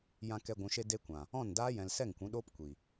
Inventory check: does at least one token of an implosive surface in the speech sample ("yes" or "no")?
yes